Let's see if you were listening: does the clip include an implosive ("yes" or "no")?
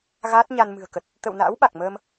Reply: yes